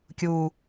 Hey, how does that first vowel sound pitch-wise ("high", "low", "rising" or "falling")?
low